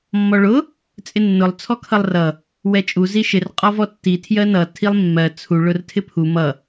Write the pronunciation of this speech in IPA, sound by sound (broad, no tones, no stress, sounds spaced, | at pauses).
mː ɔ ɭ ʊ | t͡sʼ ɪ nː ʊ lˠ t͡sʰ ɔ kʰ ʌ lˠ r ʌ | w ɛ t͡ʃʼ u z i ʃ ɪ r qʼ ɔ v ɔ tː i tʰ j ɜ n ʌ tʰ i lˠ mː ɜ t͡sʰ u ɭ ʊ r tʰ ɪ pʰ u m ʌ